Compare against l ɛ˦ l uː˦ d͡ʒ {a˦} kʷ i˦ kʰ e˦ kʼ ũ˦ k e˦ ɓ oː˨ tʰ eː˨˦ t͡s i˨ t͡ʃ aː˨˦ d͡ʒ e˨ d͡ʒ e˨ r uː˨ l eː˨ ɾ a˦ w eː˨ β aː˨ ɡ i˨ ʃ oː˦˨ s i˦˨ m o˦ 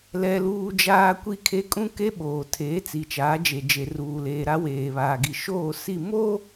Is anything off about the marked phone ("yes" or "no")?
yes